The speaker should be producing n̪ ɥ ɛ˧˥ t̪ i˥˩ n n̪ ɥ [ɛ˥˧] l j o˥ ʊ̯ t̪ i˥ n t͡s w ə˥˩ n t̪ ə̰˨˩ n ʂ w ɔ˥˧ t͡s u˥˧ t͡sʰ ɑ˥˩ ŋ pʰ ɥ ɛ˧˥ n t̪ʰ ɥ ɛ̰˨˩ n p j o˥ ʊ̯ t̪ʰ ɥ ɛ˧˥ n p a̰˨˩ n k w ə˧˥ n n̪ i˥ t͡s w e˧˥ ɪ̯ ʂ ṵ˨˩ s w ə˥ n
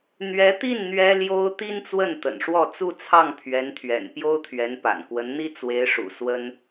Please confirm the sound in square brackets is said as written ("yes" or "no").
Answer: no